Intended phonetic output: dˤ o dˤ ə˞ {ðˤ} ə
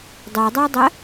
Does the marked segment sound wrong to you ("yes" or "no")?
yes